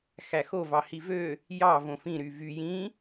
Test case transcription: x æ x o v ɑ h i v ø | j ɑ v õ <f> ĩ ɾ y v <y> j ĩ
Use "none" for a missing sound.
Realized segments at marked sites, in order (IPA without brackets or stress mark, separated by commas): f, y